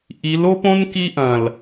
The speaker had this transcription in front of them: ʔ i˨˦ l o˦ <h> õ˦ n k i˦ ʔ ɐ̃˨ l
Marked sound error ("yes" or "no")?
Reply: yes